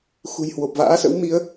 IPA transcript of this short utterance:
x ṳ˨˩ j h w o˨˩ p̚ v a̰ː˧˥ s ə̰˧˥ w m i˨˦ ə̯

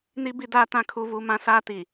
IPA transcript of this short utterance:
n i˦ b i˦ d aː˦ t ã˦ kʰ u˦ v u˦ m ã˦ s aː˦ t i˨

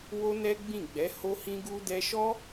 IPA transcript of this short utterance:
w o˦ n ɛ˦ ɡ͡b ĩ˦˨ ɡ͡b ɛ˨˦ h o˦ h ĩ˦ ɡ u˦ d ɛ˦ ʃ ɔ˦

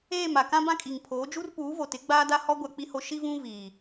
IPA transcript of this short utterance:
eː˦˨ m a˨ k ã˦ b ã˦ kʼ i˨ ŋ pʰ oː˨˦ d͡ʒ u˦ r p uː˨˦ v o˨ t ɪ˨˦ ɡ͡b aː˦ d a˦ h ɔ˦ ɡʷ a˦ k͡p i˦ h o˦ ʃ i˦ v ũ˦ v iː˨

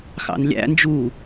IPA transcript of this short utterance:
x ɑ̰ n lʲ æ̰ n d͡ʒ u

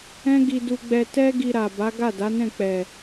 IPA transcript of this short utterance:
ɛ̃˦ ɡ i˧ d u˧ ɡ͡b ɛ˧ t ɛ˦ ɡ i˧ ɾ a˨ b a˨˦ ɡ a˦˨ d a˨˦ n ɛ̃˦˨ k͡p ɛ˨

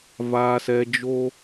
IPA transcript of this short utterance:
v aː˧ s ɛ˧ d͡ʒ o˦

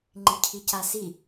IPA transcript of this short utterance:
ŋ͡ǃ i cʰ i c a s i

